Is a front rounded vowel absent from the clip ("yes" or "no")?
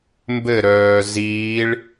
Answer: no